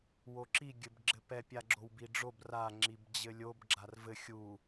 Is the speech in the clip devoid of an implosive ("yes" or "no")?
yes